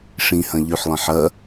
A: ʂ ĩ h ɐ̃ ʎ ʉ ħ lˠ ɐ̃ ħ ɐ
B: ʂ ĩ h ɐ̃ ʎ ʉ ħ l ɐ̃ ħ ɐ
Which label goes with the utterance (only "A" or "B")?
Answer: A